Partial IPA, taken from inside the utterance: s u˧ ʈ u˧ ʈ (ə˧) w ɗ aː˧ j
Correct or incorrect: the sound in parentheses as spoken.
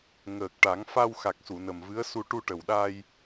incorrect: ə˨˩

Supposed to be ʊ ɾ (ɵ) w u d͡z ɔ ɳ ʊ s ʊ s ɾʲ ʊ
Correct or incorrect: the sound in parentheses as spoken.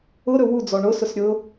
correct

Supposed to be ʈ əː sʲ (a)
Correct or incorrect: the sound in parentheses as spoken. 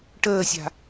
incorrect: a̤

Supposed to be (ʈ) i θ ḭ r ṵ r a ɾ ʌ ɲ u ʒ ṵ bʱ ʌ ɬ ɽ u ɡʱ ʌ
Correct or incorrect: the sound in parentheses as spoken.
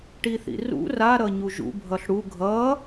correct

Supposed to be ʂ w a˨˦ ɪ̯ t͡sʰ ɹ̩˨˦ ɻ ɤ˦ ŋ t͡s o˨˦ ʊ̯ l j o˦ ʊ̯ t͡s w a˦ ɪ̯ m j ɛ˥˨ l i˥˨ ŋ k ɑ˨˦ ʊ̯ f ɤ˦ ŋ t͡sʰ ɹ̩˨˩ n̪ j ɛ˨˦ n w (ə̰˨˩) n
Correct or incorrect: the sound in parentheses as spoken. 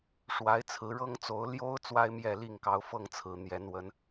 incorrect: ə˨˦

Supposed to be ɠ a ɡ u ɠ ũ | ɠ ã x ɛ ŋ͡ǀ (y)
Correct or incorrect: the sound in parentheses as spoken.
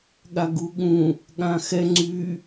correct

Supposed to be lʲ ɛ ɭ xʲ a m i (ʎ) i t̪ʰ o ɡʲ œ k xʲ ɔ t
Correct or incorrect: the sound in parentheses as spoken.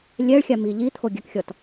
correct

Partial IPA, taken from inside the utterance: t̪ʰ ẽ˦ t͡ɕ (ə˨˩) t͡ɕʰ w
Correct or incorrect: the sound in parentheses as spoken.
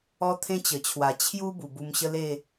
correct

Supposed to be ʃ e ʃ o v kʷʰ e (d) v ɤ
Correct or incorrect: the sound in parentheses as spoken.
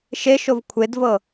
correct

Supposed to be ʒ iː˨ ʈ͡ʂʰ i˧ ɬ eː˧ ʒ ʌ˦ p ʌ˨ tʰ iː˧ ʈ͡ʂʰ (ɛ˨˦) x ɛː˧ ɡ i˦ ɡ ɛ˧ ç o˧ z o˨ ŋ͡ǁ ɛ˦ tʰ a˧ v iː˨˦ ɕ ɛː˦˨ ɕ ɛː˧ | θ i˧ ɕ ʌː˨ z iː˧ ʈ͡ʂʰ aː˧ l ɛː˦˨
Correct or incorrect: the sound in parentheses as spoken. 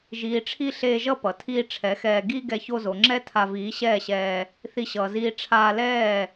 correct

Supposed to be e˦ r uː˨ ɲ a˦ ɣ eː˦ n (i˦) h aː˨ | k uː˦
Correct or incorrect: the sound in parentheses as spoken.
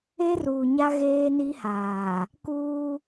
correct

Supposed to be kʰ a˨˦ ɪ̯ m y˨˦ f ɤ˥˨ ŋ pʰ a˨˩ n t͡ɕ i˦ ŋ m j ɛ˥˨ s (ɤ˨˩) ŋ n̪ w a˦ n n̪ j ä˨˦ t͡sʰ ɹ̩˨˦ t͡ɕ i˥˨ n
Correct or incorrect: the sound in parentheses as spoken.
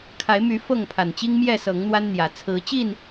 incorrect: ɤ˨˦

